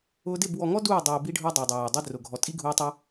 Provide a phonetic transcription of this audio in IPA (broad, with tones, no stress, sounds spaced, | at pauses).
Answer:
ʊː˧ d ɪ˦˨ b w ɔ˨ ŋ ɔ˦ d uː˦˨ dˤ uː˨ b i˧ ɖʱ ʊː˦ dˤ i˨ w dˤ ɪ˨ w ʊː˨ dˤ i˧ d r ʊ˨ ɡʱ ɔ˨ tʼ i˦ ɡʱ uː˧ tˤ o˧